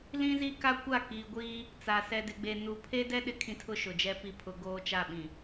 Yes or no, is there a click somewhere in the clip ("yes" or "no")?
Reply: no